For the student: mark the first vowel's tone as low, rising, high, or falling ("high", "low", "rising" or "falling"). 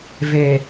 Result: low